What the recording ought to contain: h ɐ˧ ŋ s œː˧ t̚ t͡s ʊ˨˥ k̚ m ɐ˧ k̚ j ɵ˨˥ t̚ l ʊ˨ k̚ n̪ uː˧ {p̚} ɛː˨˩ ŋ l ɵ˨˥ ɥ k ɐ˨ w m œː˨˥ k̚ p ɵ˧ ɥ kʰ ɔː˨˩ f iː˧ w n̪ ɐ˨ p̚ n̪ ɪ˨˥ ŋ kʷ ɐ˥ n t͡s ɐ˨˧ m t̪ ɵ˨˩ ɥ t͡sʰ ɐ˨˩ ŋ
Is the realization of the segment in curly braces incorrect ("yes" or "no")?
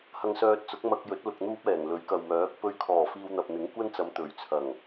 no